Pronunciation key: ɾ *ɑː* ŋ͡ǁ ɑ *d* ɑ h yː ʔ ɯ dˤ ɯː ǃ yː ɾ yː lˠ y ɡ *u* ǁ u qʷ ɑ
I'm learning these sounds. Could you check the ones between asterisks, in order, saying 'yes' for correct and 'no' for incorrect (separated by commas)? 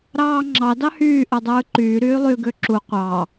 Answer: yes, yes, no